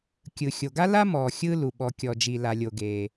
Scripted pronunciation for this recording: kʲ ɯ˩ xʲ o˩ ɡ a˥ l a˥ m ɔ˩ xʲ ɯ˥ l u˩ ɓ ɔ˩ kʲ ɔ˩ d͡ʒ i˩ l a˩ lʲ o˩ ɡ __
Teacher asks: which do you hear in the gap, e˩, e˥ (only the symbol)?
e˩